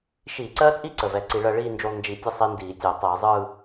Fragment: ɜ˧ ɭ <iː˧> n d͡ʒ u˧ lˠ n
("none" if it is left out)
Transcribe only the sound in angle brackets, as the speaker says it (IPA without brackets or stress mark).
iː˥˧